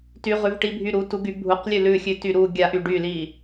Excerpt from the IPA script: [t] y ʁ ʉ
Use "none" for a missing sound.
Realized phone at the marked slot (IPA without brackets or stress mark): t